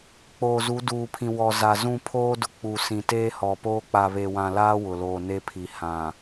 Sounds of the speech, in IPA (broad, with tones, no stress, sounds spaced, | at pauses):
k͡p oː˨ z u˨˦ d uː˨ pʰ ĩ˨ w ɔ˨ z a˨ z ũ˦˨ pʰ oː˦ d ʊ˨ k͡p u˨ s ĩ˨ t eː˦ h ɔ˨ p oː˦ k͡p a˨ β e˨ w ã˨ l aː˦ w ʊ˨ l oː˨ n e˦ pʰ i˨ h ã˨